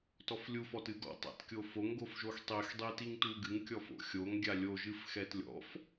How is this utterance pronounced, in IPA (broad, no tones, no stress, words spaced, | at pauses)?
tɔflʲu fɔtɨɡɔ̰ tˤa̰tkʲofoŋ ɡofʒoxtˤix dˤitiŋtuɡɨŋ kʲɔfo̰xʲoŋ ɡʲalʲo ʒɨfxɛtlʲɔ̰f